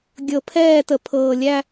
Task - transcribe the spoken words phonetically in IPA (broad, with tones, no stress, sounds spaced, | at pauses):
ɡʲ ɤ˨ pʰ ɛː˦˨ t ə˨ pʰ ɤː˨ lʲ æ˦